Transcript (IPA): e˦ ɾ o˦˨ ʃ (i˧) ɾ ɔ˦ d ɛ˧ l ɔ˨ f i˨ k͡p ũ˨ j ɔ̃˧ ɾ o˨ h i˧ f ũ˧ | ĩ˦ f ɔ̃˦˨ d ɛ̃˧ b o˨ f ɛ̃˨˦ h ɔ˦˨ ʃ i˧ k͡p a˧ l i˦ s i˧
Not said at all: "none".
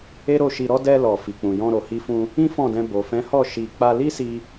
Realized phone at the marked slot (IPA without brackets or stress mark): i˧